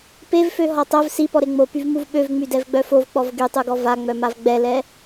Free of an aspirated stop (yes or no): yes